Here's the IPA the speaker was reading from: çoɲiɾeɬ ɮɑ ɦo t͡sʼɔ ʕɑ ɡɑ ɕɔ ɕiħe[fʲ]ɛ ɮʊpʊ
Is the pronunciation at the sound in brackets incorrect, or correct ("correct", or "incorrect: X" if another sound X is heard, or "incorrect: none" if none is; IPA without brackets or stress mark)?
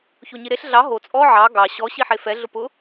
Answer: incorrect: f